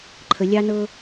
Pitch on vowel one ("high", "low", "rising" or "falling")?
low